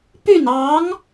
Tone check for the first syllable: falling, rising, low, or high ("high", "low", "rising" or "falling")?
falling